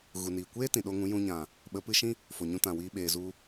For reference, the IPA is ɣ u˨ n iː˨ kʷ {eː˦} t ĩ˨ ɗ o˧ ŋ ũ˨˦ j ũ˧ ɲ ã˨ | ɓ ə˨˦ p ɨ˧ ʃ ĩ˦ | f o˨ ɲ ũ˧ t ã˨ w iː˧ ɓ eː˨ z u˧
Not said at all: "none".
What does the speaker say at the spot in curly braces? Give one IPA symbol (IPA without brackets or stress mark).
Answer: eː˦